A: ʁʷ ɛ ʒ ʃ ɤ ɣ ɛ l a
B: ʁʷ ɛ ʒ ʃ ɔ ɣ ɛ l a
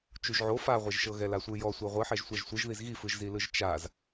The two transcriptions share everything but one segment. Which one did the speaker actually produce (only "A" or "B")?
A